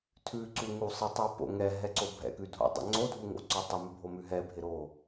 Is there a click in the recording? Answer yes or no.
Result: yes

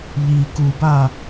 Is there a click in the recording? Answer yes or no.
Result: no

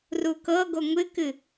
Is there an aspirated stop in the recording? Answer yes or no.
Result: no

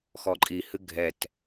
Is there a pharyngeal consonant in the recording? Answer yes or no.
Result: no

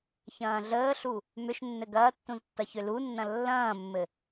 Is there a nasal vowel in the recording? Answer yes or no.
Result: yes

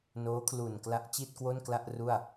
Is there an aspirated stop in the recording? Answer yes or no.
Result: yes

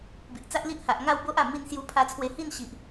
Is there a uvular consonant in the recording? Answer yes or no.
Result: no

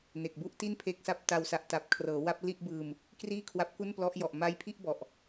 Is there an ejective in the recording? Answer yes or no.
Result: no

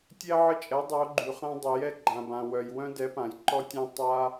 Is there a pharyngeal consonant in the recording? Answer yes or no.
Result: yes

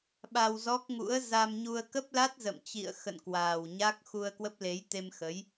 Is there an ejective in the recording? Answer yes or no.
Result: no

